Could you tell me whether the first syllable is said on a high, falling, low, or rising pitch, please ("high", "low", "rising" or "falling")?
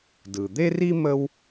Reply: low